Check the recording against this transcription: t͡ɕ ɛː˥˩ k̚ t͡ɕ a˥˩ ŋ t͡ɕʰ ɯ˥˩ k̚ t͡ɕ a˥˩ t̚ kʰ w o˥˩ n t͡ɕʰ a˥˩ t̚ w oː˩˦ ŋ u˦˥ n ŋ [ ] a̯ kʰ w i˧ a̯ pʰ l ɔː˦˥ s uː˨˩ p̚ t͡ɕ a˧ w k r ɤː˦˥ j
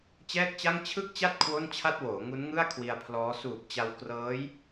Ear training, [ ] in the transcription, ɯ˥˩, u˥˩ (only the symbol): ɯ˥˩